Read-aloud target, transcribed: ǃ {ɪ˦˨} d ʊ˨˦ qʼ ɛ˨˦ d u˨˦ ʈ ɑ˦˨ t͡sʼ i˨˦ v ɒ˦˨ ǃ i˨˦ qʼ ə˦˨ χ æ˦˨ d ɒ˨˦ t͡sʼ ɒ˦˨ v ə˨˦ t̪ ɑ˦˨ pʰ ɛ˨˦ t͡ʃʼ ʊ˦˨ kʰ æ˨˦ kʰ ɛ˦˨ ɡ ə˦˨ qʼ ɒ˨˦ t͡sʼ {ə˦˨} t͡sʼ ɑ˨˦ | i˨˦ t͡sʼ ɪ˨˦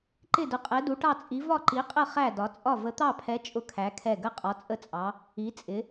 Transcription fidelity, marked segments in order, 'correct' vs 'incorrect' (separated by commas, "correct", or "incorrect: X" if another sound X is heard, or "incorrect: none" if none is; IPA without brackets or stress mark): correct, correct